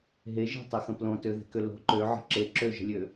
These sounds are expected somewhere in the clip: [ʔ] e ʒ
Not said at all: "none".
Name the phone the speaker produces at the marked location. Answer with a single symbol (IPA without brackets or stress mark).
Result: ɦ